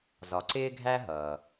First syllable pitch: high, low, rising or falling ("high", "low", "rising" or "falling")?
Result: low